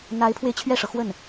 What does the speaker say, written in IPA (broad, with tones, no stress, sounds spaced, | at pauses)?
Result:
n̪ a˧˥ ɪ̯ pʰ w e˧ ɪ̯ t͡ɕʰ ɥ ɛ˥˩ ʂ ɤ˩ x w ə˥˩ n